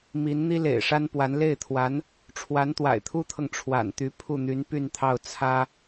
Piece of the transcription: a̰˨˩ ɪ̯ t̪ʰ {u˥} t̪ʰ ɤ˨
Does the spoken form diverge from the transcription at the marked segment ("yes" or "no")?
no